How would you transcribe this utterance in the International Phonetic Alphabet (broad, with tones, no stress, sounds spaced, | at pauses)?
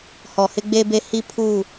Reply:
h ɔ˨ h ɪ˦ ɡ͡b e˦ b e˦ h i˦ pʰ u˦˨